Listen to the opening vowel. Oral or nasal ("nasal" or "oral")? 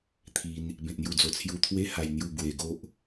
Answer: oral